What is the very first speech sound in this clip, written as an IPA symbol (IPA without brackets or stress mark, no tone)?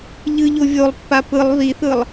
ʎ